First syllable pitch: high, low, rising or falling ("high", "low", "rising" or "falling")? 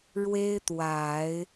high